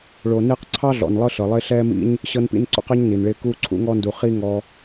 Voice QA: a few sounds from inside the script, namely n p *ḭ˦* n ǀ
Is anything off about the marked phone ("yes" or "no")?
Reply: no